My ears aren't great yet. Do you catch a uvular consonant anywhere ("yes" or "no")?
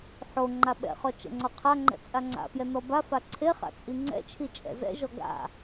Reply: yes